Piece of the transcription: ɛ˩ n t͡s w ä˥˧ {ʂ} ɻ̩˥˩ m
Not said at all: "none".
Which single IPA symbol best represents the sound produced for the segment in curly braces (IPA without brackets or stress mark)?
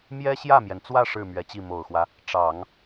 ʂ